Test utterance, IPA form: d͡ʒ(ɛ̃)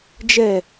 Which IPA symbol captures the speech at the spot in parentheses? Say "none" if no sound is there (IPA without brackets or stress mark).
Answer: ɛ